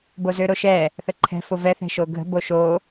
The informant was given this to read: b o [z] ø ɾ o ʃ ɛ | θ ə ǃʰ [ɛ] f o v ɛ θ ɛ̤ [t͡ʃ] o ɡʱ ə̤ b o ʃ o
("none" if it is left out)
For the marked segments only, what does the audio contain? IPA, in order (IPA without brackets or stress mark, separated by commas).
z, ɛ̤, ʃ